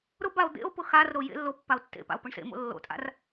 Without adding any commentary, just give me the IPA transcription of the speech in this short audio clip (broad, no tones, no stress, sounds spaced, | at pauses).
ɾ ʊ b a o̯ d̪ ḛ o̯ p ʊ x a r ɾ o j ḛ lː o pː a o̯ tː ḛ p a̰ o̯ p ʊ ɳ s ḛ m o̰ lː o̰ tʼ a̰ r